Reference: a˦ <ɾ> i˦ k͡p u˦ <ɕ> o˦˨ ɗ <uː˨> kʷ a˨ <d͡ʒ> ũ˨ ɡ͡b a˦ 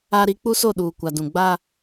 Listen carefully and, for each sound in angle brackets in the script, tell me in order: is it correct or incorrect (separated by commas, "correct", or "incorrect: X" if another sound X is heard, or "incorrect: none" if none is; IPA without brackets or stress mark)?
correct, incorrect: s, correct, incorrect: d